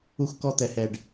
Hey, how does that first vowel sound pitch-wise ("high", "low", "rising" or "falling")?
high